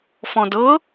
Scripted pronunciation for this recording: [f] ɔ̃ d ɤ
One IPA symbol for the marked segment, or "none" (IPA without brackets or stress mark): f